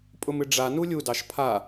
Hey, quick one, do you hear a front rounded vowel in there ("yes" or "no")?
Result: no